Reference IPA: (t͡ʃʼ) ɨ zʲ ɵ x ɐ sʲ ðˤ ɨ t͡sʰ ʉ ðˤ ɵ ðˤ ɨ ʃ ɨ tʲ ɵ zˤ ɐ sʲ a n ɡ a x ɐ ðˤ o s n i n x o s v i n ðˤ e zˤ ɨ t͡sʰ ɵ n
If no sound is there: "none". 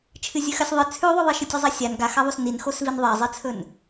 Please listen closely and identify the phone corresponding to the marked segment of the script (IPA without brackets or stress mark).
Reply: t͡ʃʰ